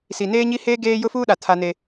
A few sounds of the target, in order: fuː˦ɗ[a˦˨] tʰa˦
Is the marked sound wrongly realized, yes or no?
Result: yes